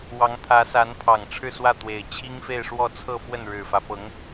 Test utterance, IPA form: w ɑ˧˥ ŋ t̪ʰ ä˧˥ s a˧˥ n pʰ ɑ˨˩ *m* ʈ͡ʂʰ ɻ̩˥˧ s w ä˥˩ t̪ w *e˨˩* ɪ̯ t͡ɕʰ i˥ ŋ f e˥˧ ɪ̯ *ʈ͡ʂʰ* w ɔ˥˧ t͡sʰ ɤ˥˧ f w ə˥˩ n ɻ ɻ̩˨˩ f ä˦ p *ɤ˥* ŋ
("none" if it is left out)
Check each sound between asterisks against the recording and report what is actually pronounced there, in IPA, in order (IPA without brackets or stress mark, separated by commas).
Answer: ŋ, e˨˩, ʂ, ɤ˧˥